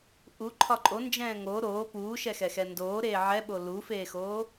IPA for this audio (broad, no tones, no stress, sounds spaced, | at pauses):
ʔ u ǃʰ ɒ ǃʼ o n d͡ʒ ɛ̃ː ŋ o ɾ oː p uː ʃ ɛ x ɛ x ɛ n d oː ɾ eː ʕ ɛ ɓ o l u f eː x oː